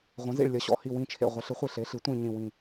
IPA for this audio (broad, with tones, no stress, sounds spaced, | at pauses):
ʁʷ ɐ̃˩˥ z ḭ˧˩ ɭ lʲ ɐ˩˥ ɕ ɔ̰˧˩ h i˧˩ w ĩ˧˩ t͡ʃʰ ḛ˧˩ ʁʷ ɐ˩˥ ɬ ɨ˩˥ χʷ i˧˩ ɬ e˩˥ ɬ i˩˥ tʷ ĩ˧˩ ɲ ĩ˧˩ w ĩ˧˩